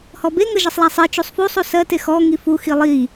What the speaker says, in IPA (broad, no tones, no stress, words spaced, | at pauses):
hɔbe ŋəʒisˤlˠa sˤi t͡ʃusˤfusˤu sɜte xɔ ŋifu xilˠi